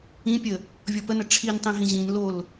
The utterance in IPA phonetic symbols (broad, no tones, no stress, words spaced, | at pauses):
ĩpʲə | vʲɔpənə ʈ͡ʂʰintˤĩ ɦĩʑĩnlol